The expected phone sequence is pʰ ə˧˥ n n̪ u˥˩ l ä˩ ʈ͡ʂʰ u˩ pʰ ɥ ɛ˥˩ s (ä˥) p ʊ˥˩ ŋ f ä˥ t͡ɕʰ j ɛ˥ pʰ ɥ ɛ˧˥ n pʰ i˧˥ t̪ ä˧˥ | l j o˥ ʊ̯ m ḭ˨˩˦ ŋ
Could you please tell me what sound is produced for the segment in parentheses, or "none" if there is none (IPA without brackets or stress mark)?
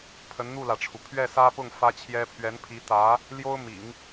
ä˥